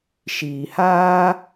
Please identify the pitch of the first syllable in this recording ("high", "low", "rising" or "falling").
low